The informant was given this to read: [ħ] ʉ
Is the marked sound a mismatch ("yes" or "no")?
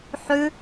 no